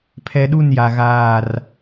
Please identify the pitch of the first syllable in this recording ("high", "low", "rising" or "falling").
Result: low